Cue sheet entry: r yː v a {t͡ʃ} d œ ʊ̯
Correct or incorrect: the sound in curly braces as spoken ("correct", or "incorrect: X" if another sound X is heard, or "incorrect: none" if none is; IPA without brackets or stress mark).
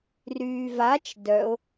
correct